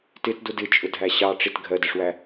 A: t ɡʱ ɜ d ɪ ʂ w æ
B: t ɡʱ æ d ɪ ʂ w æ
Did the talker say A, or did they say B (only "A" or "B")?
A